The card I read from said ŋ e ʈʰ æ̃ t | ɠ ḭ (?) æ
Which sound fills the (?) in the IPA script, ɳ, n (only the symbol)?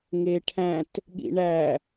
ɳ